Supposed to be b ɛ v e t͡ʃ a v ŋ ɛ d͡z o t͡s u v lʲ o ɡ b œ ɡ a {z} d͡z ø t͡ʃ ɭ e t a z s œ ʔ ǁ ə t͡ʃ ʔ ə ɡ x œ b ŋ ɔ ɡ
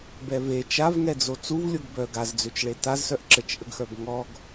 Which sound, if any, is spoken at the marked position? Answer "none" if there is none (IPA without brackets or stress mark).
z